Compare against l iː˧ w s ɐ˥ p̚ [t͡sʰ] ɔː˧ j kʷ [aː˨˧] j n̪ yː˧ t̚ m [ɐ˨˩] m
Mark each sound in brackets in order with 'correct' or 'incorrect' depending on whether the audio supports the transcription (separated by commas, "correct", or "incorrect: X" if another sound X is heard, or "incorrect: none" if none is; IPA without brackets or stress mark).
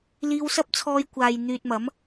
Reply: correct, incorrect: aː˨, incorrect: ɐ˨˥